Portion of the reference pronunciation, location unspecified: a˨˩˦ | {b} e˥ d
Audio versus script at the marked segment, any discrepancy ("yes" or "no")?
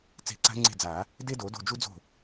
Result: yes